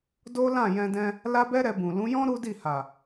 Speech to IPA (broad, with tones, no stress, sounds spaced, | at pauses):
d o˦ l ã˦˨ j ɛ̃˧ d ɛ̃˧ | l a˦ b ɛ˦ ɾ ɛ˧ b ũ˨ l ũ˨˦ j ɔ̃˦ ɾ u˦ d i˦˨ h a˨